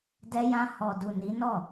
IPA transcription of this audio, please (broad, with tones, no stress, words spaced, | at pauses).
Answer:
dɛ˧ jã˧ hɔ˨du˨ ni˨˦ nɔ˦˨